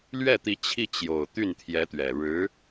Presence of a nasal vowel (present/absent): absent